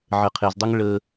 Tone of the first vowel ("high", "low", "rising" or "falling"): low